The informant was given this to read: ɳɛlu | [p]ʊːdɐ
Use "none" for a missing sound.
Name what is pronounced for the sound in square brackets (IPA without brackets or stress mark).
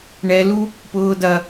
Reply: p